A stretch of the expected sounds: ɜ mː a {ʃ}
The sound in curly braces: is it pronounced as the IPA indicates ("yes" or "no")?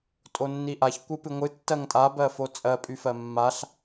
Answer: no